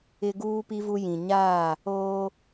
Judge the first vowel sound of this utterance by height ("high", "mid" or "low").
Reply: high